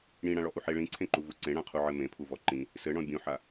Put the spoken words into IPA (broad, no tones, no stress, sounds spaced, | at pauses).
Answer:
ɽ ĩ ɽ ã ɭ ɔ ʔ u ħ e ɭ ĩ ǀʰ ẽ ǃ u v u ǀ ẽ ɽ ã qʰ u ʕ ɘ m ẽ pʰ u v ɔ ǃ ĩ | s ɘ ɳ ɔ̃ bʲ ũ ħ a